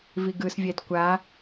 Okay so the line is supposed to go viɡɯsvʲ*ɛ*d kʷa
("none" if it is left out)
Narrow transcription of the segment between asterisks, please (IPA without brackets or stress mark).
ɛ